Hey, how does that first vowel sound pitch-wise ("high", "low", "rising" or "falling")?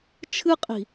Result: high